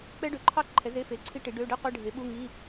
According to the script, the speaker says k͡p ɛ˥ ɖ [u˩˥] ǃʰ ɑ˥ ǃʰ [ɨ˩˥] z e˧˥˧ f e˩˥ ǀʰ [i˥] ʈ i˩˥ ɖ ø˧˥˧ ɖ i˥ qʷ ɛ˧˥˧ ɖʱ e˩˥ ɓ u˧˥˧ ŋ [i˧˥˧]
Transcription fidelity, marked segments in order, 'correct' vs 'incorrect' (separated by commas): incorrect, incorrect, correct, correct